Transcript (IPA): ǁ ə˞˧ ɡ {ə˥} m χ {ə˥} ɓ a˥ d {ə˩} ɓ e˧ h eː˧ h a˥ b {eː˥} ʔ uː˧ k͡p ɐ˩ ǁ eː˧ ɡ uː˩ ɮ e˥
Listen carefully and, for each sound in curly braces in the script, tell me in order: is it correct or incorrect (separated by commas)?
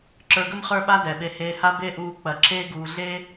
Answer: correct, incorrect, incorrect, incorrect